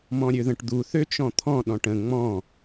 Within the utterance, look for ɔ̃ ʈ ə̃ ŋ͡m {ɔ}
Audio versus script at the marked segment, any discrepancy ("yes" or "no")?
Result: yes